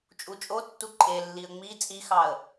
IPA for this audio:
t͡ʃʼ u t͡ʃʼ o tː u ǃʼ e lː i ə̯ ŋ͡m i t͡sʼ i x ɑ ə̯

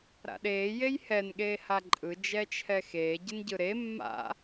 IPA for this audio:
ɾ a̰ ɗ eː j e j h ɛ n ɠ eː h a ǃʼ ɯ d͡ʒ ɛ t͡ʃʰ ɛ x eː ɟ ɯ n ɟ ɯ ɾ e mː a̰

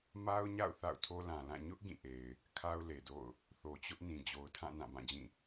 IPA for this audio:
m a˦ ʊ̯ ɲ a̰˦˨ ʊ̯ θ a̰˦˨ ʊ̯ tʰ o˦ l ã˨ l ã˦˨ ɲ ʊ˦ ʔ ɡ ĩ˦˨ ʔ e˨ ɪ̯ | kʰ a˦ ʊ̯ l e˨ d o̰˦˨ ʊ̯ | θ o˨ t͡ɕ ʊ˦ ʔ n ĩ˨ d͡ʑ o˨ ʊ̯ tʰ ã˦˨ n ã˦˨ b ã˦˨ d͡ʑ ĩ˦˨

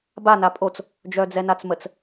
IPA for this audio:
b a n a pʼ o t͡s | d͡ʒ œ d͡z ɛ n a t͡s m ə t͡s

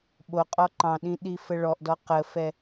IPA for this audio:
ɓ o qʼ ɔ ǃ ɑ̃ ɗ ĩ ɗ i f ə ɭ ɔ ʔ d ɔ q ə f ɛ

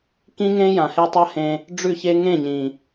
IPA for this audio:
k ĩ˦ ŋ ẽ˦ j ã˨ h e˧ tˤ a˦ h ẽ˧ | ɖ͡ʐ ʉ˦˨ ç e˦ ŋ ẽ˦˨ ɲ ĩ˨

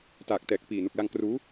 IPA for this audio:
t aː˨˩ k̚ t ɛː˨˩ k̚ p iː˨˩ n u˨˩ k̚ l a˧ ŋ k r uː˦˥

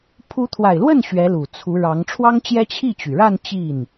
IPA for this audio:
pʰ u˧˥ t̪ʰ w a˨˩ ɪ̯ l w ə˥˩ n ɕ ɥ ɛ˧˥ l u˨˩ t͡sʰ u˧˥ ɻ ɑ˧˥ ŋ ʈ͡ʂʰ w ɑ˥ ŋ t͡ɕ j ɛ˥ t͡ɕʰ i˥˩ t͡ɕ y˩ ɻ a˥˧ n t͡ɕ i˥˩ n

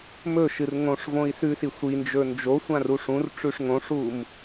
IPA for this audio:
m ɵ ʃ ɨ r ŋ õ ʂ v õ i̯ s ʉ s i sʷ i n d͡ʒ ɵ n d͡ʒ o sʷ ã r u ʂ ũ r ʈ͡ʂ ʉ ʂ ŋ õ ʂ u m

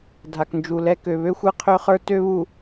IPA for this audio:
dʱ a˨ k n d͡ʒ u˨ l ɛ˦ k ø˨ β ø˦ xʷ e˦ qʰ ø˦ χ ə˞˦ t ø˦ β u˨

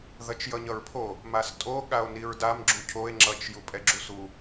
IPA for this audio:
ð ʌ t͡ʃ j ʌ ɲ ʌ ɹ pʰ o | m a s tʼ o ɠ a o̯ n i ɹ d a m ɡ͡ǁ u cʰ o e̯ ŋ͡ǁ ʌ t͡ʃ j u pʼ ɛ ɡ͡ǁ u s u

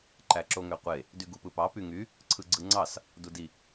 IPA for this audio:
ǃ æ ǁ o ŋ ø qʷ e | d y ɡ u p ɯ p ɑ p y ŋ y | ǀʰ ɯ ɡ͡ǀ ɯ ŋ͡ǀ ɑ s | d u d i

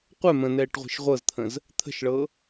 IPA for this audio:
qʷ ɛ m ə̃ n ɛː ʈ ʁʷ e̤ ʃ ʁʷ ɤ z t̪ʰ ə̃ z | t̪ʰ ə̤ ʃ ɭ ɤ

